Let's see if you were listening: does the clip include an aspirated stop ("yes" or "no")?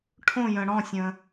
yes